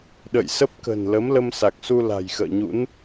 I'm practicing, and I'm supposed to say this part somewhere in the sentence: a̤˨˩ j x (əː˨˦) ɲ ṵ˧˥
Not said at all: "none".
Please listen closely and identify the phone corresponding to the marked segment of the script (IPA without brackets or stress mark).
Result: ə̰ː˧˨